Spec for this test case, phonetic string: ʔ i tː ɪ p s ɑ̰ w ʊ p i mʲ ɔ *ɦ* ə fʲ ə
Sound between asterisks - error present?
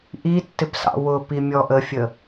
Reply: yes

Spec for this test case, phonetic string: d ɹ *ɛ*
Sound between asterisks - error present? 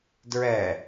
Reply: no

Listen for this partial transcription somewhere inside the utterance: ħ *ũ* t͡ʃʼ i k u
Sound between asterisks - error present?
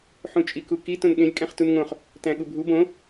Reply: no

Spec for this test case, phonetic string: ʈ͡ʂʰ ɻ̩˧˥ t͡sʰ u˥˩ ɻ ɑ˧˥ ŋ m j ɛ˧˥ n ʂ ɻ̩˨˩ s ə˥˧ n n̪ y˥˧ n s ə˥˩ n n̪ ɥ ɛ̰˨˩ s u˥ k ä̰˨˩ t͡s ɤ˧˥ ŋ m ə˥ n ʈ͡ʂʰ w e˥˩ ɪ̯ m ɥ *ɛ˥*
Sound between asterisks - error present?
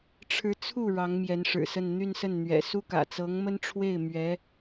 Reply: yes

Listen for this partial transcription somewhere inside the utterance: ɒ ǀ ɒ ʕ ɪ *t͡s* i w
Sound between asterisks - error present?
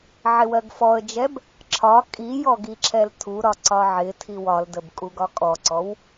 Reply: yes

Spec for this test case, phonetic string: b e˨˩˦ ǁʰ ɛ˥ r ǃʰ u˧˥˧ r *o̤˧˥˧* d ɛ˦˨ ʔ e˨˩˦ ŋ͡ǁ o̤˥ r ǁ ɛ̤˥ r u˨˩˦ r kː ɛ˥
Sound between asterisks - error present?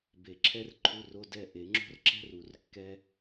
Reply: yes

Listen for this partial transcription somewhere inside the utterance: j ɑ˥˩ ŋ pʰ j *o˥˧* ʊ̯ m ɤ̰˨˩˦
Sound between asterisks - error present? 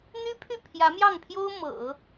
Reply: yes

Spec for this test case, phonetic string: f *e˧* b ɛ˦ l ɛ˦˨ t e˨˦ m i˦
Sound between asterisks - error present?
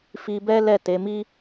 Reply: yes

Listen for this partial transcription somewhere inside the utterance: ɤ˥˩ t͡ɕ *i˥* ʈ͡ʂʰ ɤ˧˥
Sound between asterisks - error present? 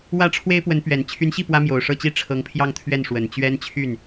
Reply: no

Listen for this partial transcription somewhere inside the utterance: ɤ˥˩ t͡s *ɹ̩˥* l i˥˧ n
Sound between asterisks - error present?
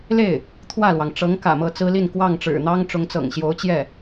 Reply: no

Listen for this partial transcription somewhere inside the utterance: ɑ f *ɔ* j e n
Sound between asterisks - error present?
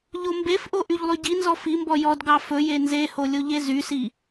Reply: yes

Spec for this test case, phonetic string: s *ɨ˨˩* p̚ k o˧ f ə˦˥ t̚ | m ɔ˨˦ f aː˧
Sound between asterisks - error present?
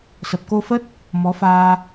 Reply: yes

